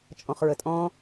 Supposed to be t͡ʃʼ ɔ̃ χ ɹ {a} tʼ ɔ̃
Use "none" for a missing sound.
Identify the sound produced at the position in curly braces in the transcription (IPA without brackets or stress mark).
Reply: ə